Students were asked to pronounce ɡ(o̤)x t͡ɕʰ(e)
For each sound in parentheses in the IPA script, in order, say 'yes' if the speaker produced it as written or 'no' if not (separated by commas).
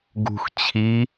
no, no